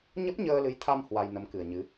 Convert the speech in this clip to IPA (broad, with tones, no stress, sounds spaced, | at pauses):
ɲ ə˦˥ p̚ ɲ əː˧ l ɨ˨˦ j t̪ʰ a˧ m h w a˧ j n ə˨˦ m k ɨ˨˩ ə̯ ɲ ɨ˨˦